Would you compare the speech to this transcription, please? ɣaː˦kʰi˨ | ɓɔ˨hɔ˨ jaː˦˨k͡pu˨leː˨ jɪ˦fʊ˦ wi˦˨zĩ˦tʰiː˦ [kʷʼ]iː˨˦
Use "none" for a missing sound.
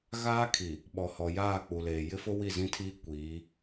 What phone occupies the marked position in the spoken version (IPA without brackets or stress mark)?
kʷ